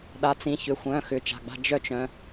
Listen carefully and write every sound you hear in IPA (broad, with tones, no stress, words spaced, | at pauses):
ɗa˩˧˩t͡sĩ˩˧˩çʏ˩˧˩xʷœ̃˩˧˩ xʏ˩˧˩t͡ʃa̤˩˧˩ɡ͡ba̤˧ d͡ʒœ˧t͡ʃ œ̃˩˧˩